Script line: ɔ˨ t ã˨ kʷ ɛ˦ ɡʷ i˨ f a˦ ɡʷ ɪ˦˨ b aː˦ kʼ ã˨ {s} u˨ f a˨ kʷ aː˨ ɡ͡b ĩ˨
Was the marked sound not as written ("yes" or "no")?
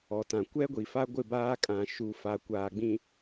yes